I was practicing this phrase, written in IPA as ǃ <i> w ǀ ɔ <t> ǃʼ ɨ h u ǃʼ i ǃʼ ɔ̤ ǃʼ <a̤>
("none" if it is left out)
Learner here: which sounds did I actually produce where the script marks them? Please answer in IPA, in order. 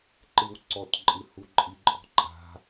ɨ, t, a̤

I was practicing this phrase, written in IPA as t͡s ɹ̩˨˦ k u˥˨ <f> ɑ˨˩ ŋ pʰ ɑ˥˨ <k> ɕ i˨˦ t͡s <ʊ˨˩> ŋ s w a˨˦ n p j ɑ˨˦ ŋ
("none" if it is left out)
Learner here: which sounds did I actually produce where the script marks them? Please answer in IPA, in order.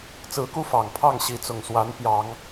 f, ŋ, ʊ˨˩

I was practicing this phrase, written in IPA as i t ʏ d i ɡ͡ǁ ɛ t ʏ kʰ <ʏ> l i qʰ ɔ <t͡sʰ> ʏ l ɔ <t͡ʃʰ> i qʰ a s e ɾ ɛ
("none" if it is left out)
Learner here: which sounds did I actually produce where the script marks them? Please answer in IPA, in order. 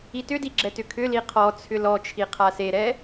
ʏ, t͡sʰ, t͡ʃʰ

